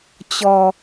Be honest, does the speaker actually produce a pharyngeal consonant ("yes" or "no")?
no